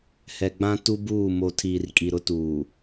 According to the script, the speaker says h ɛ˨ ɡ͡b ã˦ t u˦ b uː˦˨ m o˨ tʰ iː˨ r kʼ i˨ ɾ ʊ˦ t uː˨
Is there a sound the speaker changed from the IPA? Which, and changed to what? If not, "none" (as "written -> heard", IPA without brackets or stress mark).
none